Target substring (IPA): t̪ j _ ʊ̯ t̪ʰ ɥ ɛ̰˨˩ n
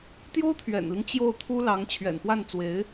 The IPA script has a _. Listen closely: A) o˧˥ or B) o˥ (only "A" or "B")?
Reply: B